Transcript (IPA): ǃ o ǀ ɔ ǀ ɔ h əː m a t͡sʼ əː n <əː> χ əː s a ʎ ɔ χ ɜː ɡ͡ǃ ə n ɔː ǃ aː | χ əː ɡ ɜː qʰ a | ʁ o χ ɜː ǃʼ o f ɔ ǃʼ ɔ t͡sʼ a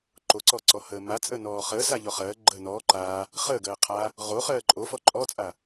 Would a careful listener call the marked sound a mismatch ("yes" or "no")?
yes